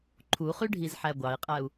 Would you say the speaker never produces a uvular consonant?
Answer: no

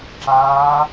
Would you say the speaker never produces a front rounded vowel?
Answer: yes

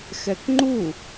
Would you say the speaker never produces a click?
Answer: no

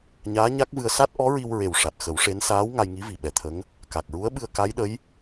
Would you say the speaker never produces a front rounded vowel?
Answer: yes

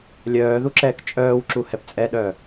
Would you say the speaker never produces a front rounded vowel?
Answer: no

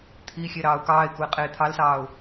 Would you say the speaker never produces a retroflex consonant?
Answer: yes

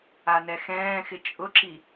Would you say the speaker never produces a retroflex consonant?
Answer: yes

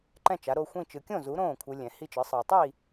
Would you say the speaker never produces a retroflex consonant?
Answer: yes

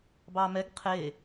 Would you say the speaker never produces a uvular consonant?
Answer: no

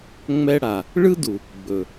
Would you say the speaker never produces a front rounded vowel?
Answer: yes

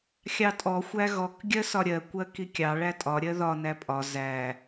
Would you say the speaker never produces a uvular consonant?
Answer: yes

